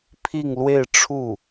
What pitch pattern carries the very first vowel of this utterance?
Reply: falling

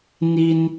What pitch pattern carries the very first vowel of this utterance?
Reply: high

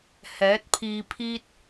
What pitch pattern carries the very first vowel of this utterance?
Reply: rising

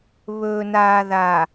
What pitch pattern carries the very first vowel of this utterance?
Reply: low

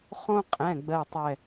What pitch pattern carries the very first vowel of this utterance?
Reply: high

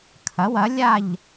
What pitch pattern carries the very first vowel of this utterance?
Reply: rising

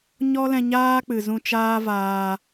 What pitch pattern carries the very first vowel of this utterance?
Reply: high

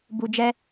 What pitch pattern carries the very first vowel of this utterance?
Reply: low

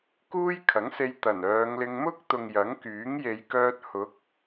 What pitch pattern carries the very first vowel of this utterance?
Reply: high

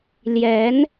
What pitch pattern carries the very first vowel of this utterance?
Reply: rising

